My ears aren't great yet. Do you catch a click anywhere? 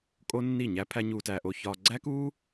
yes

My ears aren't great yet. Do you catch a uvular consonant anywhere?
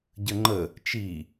no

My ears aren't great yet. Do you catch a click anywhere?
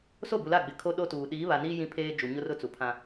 no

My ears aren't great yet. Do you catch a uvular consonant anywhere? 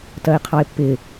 yes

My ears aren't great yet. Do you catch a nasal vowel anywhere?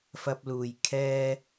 no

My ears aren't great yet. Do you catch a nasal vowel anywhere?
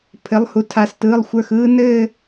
no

